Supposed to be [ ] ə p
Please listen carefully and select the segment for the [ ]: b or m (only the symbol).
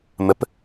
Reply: m